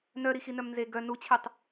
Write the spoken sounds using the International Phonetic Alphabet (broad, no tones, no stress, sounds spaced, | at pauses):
n œ ɾ i x i n œ m n z e ɡ œ n u t͡ɕʰ e tˤ